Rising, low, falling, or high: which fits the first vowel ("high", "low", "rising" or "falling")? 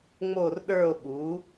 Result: falling